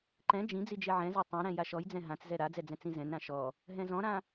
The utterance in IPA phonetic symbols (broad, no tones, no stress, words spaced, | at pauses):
ǃɛ̃ d͡ʒĩd͡zi d͡ʒeʕɛ̃za tˤɛ̃ɾɛ̃ jaʃɔjd͡zɛ̃ ɦãt͡szɛ ɾad͡zɛ d͡zɛ̃t͡sĩzɛ̃nɾã ʃɔ | ɦɛ̃zɔ̃ɾã